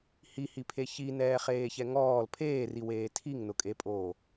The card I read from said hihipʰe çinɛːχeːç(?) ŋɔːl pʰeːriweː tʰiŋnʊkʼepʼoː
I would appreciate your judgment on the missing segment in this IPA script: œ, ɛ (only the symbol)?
ɛ